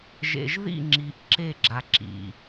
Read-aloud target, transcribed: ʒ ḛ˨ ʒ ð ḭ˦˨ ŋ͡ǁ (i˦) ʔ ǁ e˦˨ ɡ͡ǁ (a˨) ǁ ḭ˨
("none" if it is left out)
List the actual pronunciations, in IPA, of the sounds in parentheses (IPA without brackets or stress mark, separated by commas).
i˨, a˨